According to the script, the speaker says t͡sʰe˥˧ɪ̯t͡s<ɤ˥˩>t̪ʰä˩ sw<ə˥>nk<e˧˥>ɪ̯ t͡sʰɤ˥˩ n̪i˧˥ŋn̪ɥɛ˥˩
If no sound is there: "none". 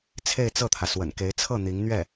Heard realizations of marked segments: ɤ˥˩, ə̰˨˩, e˧˥

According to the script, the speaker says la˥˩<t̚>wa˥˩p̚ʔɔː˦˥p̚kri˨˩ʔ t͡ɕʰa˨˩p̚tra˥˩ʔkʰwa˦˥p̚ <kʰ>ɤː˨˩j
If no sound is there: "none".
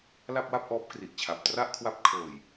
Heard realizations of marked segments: p̚, kʰ

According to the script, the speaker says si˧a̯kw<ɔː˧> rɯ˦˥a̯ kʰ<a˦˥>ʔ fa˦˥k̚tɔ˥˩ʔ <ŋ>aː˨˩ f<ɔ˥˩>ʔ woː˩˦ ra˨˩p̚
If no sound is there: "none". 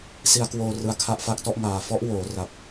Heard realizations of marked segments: oː˧, a˦˥, ŋ, ɔ˦˥

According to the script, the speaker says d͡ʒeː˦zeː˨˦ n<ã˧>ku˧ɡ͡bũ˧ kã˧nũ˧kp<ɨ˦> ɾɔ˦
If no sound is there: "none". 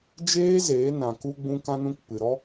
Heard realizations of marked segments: ã˨, ɨ˨

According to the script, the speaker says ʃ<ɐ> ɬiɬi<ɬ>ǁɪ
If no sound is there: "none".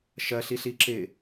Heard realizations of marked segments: ɐ, none

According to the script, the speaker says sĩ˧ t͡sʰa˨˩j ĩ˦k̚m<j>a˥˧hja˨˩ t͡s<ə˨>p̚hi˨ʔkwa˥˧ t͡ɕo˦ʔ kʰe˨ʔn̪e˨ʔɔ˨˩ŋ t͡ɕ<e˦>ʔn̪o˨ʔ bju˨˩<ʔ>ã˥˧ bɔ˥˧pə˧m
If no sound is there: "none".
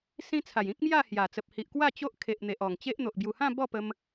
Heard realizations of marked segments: j, ə˨, e˦, h

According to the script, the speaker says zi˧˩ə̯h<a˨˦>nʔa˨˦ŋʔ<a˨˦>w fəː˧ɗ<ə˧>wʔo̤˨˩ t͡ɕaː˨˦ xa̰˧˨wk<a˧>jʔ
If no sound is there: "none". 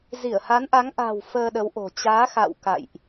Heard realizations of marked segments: a˨˦, a̤˨˩, ə˨˦, a̰˧˨

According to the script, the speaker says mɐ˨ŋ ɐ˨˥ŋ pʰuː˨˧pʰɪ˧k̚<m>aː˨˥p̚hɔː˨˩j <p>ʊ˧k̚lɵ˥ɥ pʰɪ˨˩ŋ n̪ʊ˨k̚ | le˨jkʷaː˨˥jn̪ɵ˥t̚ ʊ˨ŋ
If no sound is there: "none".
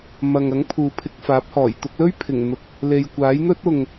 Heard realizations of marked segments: f, t̪

